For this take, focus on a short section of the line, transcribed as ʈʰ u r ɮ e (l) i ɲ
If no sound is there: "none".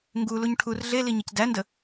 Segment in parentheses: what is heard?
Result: l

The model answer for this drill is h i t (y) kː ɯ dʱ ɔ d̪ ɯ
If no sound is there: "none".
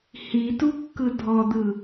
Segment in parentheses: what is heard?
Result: u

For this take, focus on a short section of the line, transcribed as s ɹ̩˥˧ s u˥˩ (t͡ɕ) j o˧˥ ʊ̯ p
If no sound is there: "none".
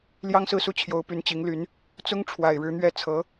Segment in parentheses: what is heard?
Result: t͡ɕʰ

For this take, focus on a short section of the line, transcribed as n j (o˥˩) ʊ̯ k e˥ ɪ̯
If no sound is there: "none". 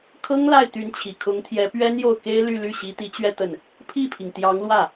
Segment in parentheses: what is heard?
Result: o˥˩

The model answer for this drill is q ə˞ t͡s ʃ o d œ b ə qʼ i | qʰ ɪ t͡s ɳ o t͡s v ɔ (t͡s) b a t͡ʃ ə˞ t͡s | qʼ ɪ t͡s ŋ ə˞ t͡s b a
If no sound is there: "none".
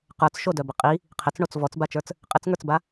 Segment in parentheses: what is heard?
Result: t͡s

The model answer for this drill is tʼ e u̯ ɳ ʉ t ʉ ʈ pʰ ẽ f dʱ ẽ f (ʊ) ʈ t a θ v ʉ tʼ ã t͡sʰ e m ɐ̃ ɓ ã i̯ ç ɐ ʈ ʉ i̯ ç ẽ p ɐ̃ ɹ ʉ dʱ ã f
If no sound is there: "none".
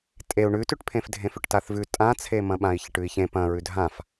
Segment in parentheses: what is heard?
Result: ʉ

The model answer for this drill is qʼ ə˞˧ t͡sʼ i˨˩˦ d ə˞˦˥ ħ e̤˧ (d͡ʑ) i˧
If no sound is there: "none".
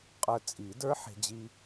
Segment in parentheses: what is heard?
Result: d͡ʑ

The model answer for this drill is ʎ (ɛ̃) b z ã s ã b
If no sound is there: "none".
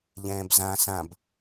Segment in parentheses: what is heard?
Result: ɛ̃ː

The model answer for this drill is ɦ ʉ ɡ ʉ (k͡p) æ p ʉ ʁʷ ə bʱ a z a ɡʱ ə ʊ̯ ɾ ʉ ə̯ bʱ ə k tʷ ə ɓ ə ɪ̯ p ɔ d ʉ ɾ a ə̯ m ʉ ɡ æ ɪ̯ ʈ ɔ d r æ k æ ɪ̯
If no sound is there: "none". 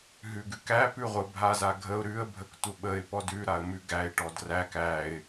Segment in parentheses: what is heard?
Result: k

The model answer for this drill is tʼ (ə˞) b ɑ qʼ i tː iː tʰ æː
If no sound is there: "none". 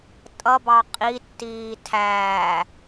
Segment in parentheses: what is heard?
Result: ʌ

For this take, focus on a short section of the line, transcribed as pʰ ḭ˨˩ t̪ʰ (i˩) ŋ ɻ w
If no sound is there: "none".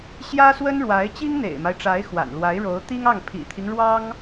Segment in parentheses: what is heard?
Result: i˦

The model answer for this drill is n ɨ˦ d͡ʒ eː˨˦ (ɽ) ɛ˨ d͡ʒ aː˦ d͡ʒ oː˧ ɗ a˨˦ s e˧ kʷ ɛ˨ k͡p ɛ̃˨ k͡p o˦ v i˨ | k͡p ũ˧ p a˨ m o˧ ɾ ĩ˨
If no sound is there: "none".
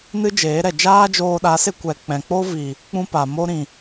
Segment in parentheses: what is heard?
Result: ɾ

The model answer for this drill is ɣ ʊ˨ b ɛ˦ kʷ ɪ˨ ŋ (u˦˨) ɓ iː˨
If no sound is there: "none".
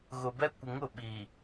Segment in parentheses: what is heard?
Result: ʊ˦˨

